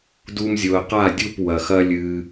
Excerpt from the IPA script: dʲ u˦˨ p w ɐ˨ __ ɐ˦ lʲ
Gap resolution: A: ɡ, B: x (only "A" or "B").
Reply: B